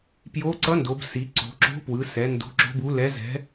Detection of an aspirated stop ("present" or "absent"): absent